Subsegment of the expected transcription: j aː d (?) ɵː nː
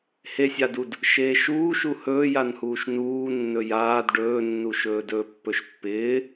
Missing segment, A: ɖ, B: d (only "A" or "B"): A